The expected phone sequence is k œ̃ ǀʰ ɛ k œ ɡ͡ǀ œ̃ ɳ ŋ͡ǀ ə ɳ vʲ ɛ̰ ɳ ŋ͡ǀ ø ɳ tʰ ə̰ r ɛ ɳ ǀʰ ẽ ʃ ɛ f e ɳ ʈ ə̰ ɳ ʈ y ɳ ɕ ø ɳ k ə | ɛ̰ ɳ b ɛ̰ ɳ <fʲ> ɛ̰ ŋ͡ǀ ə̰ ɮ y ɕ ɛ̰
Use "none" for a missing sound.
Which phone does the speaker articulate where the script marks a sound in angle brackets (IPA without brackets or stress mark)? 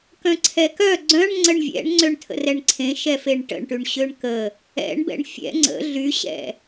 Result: fʲ